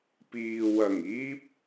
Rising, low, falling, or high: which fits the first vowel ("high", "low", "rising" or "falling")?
low